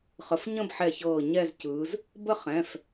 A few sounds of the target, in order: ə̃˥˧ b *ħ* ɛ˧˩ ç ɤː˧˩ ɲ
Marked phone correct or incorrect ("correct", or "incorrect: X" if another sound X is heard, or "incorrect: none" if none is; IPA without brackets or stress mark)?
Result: correct